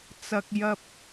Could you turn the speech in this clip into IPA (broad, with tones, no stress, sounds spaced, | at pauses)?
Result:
t͡s ɐ˧ k̚ j ɐ˧ p̚